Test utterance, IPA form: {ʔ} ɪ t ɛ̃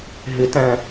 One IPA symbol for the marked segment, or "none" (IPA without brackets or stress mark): ɦ